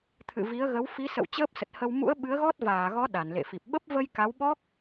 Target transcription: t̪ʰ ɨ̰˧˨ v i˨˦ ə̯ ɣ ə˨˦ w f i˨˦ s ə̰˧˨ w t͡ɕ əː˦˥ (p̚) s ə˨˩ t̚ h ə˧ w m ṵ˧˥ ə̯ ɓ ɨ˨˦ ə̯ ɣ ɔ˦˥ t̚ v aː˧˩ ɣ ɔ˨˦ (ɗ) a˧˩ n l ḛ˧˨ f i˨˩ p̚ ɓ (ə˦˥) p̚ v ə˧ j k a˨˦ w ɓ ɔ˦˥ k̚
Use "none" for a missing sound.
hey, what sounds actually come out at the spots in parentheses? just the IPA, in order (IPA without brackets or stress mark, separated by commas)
p̚, ɗ, ə˦˥